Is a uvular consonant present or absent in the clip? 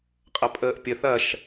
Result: present